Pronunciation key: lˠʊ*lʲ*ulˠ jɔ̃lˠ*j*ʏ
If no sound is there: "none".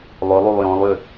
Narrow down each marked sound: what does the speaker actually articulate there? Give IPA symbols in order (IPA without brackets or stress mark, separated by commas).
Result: lˠ, j